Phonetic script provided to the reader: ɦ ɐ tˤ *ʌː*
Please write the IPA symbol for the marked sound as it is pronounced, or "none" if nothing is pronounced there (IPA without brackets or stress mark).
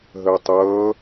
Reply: ʌː